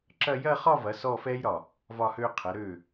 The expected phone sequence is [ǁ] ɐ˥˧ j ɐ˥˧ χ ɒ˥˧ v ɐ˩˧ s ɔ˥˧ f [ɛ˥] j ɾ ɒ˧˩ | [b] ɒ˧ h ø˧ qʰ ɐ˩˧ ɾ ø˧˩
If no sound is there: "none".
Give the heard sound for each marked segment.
ǁ, ɛ˥, v

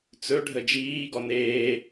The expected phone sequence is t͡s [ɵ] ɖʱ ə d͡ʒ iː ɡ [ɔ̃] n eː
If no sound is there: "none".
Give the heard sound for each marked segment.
ɵ, ɔ

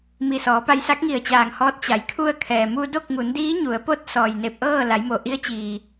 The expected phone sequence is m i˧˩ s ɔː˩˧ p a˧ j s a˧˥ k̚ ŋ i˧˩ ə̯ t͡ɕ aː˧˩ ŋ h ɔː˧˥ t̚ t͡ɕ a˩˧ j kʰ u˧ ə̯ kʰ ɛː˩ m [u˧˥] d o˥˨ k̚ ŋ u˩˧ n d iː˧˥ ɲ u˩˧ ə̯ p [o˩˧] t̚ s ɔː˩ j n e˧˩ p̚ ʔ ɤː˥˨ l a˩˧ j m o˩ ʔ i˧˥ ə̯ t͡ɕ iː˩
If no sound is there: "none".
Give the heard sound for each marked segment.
u˧, o˧˥

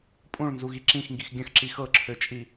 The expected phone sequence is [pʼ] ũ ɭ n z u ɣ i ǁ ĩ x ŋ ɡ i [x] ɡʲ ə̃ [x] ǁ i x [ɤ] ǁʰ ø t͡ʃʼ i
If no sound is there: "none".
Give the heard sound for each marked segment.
pʼ, x, x, ɤ

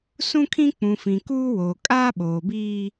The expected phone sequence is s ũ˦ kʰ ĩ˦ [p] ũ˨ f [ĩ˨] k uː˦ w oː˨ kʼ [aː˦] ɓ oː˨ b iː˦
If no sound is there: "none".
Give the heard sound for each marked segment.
k͡p, ĩ˨, aː˦

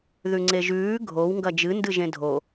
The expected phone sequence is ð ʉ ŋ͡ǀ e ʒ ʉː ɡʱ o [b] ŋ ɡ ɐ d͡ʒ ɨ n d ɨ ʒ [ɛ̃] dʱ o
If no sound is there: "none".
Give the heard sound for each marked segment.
w, ẽ

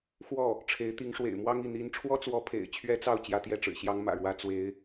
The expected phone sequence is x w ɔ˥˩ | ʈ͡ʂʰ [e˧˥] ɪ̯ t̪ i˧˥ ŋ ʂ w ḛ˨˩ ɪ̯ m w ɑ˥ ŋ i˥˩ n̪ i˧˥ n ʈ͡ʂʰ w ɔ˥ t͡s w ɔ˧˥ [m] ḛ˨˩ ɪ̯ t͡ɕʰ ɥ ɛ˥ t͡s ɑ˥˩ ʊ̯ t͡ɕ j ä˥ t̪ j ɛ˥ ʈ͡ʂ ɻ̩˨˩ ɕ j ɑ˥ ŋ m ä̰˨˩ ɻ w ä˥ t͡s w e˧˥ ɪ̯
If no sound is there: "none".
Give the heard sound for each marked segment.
e˧˥, pʰ

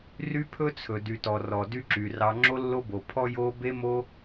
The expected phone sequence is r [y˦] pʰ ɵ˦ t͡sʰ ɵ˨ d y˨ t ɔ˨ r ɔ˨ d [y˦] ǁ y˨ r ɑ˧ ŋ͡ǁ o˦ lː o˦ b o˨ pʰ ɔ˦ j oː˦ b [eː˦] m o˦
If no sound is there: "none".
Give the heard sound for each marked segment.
y˦, y˦, e˦

